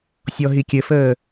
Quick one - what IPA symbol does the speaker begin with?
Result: sʲ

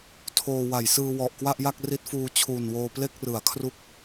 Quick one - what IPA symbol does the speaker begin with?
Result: tʰ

